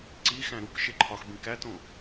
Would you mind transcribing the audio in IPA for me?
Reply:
ǀ i x æ̃ ɾ u k ʃ e ǃʰ ɒ x b ĩ k æ t õ

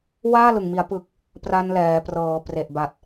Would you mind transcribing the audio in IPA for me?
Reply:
w aː˥˩ l ɯ˨˩ ŋ m i˩˦ a̯ p ɯ˨˩ k̚ | p r a˧ n l ɛː˩˦ p r ɤː˩˦ p r e˨˩ ʔ b a˨˩ t̚

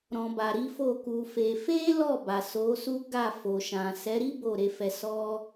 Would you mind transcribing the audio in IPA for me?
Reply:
ɾ ɔ̃˨ b a˨ ɾ i˨˦ f o˦˨ k u˧ f e˧ f e˦ l ɔ˦˨ b a˨ s o˨˦ s u˦ ɡ a˦˨ f o˨ ʃ ã˨ s ɛ˨˦ ɾ i˦ b o˦˨ ɾ e˧ f ɛ˧ s ɔ˦

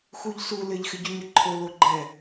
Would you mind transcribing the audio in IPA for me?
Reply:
x u ʎ s u l ɪ ʎ x ɪ ɟ u ɲ ə ǃʰ o l o ɡ͡ǃ ɛ

